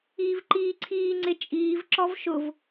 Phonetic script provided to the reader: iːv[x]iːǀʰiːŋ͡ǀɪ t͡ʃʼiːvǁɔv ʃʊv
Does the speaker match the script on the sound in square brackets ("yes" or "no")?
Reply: no